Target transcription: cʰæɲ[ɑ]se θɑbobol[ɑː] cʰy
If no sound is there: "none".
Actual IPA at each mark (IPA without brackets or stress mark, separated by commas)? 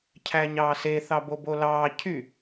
ɑː, ɑː